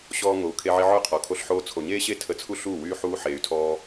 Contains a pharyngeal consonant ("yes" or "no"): yes